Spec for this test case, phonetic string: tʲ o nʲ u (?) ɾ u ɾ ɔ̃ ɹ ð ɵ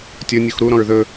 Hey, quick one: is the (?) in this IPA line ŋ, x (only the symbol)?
x